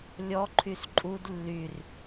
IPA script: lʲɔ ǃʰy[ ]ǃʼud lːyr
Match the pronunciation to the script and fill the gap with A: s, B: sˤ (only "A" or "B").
A